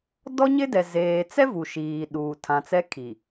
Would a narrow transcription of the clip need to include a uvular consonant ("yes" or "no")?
no